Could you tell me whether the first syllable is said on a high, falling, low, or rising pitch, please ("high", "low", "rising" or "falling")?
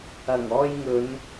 low